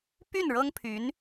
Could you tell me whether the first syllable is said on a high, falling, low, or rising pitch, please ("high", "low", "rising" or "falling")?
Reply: falling